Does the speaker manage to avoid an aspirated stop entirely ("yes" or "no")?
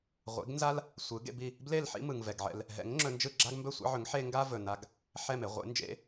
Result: yes